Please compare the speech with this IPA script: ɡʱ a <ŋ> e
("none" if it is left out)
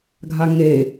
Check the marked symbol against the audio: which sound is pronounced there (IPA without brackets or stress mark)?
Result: ŋ